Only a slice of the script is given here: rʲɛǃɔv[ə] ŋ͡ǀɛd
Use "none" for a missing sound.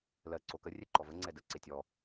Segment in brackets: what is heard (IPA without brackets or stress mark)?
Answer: ə